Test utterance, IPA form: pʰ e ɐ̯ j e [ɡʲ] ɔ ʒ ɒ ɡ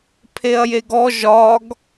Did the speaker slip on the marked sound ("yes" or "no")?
yes